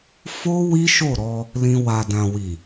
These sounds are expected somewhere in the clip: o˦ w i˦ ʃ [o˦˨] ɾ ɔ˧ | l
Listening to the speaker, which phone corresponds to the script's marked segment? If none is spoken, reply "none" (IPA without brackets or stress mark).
o˦˨